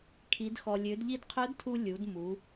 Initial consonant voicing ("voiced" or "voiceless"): voiceless